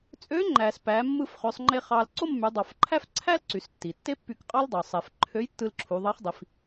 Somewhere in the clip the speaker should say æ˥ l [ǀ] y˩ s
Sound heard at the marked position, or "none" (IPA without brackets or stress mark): ǀ